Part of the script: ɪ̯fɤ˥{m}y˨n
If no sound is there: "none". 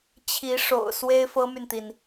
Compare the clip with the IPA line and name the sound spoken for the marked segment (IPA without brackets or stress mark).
m